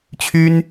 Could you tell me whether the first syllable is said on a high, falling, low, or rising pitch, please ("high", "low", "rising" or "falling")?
high